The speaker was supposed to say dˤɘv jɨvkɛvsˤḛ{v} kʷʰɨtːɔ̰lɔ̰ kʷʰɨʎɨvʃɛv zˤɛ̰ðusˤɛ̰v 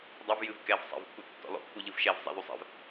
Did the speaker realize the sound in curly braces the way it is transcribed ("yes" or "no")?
yes